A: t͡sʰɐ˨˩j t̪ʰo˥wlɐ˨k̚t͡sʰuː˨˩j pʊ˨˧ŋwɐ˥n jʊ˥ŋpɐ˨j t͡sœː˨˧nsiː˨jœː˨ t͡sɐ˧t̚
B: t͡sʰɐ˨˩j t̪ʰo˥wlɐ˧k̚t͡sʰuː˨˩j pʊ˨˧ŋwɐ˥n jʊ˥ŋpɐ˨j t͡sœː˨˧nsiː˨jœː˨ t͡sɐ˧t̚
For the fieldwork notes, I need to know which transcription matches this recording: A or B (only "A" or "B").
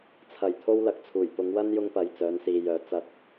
A